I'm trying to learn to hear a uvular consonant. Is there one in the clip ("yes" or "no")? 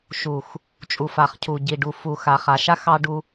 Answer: yes